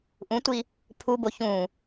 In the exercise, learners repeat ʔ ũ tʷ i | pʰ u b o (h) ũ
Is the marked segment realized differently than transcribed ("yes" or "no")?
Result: yes